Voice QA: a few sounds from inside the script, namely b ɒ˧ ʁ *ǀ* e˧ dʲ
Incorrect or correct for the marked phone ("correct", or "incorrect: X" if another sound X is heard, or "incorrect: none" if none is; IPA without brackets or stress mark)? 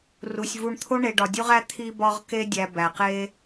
incorrect: k